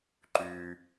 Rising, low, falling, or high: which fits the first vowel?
high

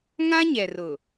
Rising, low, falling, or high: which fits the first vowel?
high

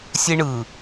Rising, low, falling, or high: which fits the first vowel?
high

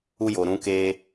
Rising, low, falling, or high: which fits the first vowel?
high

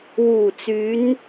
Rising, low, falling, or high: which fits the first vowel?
low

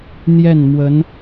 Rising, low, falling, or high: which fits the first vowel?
falling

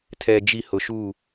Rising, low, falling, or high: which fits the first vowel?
low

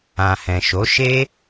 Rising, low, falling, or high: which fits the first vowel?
low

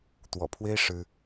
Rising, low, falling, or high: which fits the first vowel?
low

